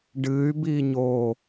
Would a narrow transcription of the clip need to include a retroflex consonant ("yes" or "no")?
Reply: yes